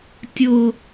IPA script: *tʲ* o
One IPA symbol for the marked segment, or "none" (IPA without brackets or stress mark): tʲ